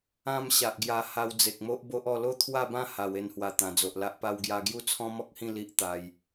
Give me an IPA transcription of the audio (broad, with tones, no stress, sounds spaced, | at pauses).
ã˥˧ m ɕ a˨ ʔ ɡ j a˧ h a˧ w d͡z e˨ k̚ m o˦ ʔ b o˦ ʔ ɔ˥˧ l o˥˧ t̪ʰ w a˥˧ b ã˥˧ h a˨˩ w e˧ n h w a˨˩ t̪ ã˨˩ d͡z o˨ ʔ l a˦ ʔ p a˧ w ɡ j a˧ ɡ j u˦ t͡sʰ ɔ̃˦ m ɔ˦ k̚ h ĩ˥˧ l i˦ ʔ t̪ a˧ j